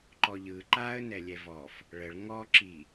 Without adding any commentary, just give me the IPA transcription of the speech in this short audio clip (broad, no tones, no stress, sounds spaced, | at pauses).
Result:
ǃ ɔ ʎ ɯ ǃ a ə̯ n ɛ lʲ ɛ v ɔ f | ɭ ə ɭ ŋ ɔ ǁ i